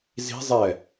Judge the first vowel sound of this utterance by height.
high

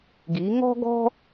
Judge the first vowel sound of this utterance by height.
high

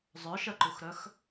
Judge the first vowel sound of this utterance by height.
mid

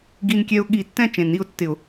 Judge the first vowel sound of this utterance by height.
high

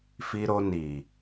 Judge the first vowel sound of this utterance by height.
high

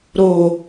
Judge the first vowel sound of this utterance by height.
mid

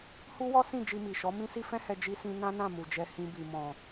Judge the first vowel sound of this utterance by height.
high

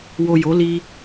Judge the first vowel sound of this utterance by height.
mid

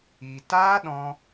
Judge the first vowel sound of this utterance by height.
high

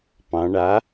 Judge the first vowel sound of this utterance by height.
low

